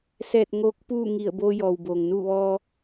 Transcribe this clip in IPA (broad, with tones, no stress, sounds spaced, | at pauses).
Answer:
s ɛː˧˩ t̚ ŋ oː˧˥ k̚ p uː˥˨ ŋ i˧˩ ə̯ b oː˧ j ɔː˩ w b oː˩ ŋ n uː˥˨ ʋ ɔː˧